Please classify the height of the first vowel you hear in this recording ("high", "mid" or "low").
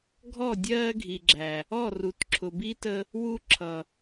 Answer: mid